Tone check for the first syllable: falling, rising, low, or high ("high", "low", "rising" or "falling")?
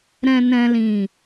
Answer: low